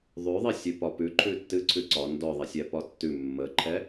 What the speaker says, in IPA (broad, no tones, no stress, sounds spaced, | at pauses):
ðˤ ʉ ðˤ i sʲ ʉ p ɒ p ʉ ǃʰ ʉ tː ɨ ǀʰ ʉ ǀ ɒ n d ɔ ðˤ ɛ sʲ ɛ p ɒ tː ʉ mː ə ǃʰ ɛ